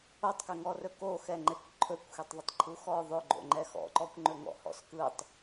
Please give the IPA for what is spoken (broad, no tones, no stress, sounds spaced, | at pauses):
o tˤ k ɛ ŋ ɔ r ɵ k o x ɛ ŋ͡ǃ e kʷ ǃʰ ɵ kʷ x e tˤ ðˤ ʊ tˤ ǃʰ u x ɔ ðˤ ɵ ɡ͡ǃ o̰ ŋ͡ǃ ɛ x ɔ̰ ǃ ɔ kʷ ŋ͡ǃ ɵ ŋ ɔ̰ h ɔ̰ s k ɯ tˤ